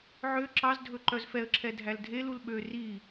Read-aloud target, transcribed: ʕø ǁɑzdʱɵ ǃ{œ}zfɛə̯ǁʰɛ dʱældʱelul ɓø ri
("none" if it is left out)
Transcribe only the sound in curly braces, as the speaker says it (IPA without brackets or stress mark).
œ